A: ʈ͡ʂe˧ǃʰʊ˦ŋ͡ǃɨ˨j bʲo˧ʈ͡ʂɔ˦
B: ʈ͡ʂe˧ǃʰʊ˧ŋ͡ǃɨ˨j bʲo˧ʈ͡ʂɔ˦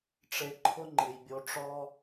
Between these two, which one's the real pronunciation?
A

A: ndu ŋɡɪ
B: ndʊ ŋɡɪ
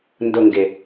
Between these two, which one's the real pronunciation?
B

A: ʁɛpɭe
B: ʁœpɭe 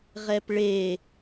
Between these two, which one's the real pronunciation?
A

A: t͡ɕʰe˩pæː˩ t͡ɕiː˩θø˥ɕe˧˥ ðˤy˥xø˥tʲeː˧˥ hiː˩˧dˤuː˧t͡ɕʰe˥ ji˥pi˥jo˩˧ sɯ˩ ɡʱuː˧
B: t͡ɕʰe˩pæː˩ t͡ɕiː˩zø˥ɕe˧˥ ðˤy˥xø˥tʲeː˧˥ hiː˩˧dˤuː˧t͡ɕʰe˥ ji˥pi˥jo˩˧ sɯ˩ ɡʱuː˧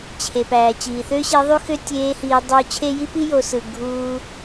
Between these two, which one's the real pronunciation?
A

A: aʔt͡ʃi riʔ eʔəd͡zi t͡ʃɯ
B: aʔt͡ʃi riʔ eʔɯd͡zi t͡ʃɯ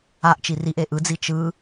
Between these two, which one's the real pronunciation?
B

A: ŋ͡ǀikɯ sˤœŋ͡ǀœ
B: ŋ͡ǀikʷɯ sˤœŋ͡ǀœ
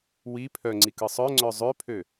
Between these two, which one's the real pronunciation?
A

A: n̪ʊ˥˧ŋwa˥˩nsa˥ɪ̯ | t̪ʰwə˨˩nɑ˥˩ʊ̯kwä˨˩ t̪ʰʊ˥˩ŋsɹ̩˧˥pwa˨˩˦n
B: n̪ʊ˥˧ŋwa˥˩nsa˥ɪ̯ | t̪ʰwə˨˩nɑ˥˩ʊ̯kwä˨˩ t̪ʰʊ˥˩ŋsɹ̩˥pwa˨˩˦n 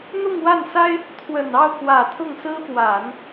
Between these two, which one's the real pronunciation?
B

